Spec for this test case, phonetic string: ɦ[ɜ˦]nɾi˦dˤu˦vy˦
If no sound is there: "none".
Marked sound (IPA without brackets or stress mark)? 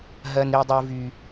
ɜ˦